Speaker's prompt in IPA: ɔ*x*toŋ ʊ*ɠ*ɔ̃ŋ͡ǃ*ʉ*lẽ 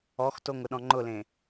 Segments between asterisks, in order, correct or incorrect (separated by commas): correct, incorrect, incorrect